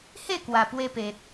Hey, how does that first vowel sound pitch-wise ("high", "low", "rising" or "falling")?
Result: falling